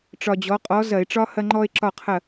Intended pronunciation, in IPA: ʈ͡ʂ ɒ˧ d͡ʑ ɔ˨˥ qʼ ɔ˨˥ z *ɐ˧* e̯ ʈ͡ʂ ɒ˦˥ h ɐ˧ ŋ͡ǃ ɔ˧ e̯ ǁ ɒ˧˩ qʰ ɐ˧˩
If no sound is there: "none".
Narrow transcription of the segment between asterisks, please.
ɐ˧˩˧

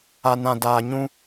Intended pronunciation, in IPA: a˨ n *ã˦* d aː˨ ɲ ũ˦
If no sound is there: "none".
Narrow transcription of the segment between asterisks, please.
ã˨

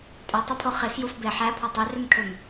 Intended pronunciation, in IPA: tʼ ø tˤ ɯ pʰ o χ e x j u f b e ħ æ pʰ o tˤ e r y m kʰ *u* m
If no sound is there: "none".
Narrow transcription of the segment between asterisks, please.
ø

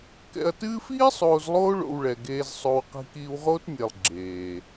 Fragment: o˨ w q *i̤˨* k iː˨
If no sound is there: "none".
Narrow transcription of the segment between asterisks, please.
i̤˨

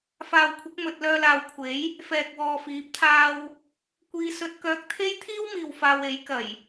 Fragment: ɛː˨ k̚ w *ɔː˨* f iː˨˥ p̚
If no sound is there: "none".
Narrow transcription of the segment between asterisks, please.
ɔː˨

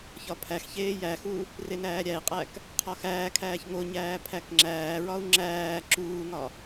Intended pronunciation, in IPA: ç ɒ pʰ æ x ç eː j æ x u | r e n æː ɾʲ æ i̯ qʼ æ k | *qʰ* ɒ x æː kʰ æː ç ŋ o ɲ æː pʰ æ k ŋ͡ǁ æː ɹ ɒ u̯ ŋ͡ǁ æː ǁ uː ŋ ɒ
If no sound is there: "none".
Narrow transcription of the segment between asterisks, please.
qʰ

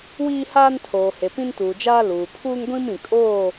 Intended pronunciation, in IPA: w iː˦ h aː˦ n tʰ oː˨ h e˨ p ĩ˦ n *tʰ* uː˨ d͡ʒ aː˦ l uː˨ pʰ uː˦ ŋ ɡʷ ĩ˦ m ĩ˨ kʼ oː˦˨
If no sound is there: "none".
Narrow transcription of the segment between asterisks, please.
t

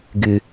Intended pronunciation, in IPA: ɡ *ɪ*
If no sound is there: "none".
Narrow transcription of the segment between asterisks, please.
ɪ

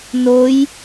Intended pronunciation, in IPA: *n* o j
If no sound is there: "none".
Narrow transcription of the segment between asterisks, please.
n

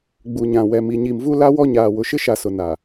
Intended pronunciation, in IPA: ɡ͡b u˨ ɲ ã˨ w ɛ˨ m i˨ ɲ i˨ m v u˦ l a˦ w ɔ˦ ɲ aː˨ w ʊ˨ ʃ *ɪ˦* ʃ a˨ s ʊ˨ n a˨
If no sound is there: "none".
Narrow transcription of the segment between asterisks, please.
ɪ˦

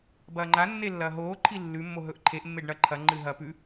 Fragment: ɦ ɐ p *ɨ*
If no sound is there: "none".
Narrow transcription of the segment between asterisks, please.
ʉ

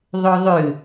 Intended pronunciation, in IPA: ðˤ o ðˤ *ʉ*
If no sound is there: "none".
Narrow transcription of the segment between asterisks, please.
ʉ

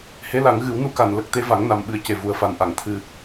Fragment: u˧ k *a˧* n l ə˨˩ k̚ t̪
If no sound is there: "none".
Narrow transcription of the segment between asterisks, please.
a˨˩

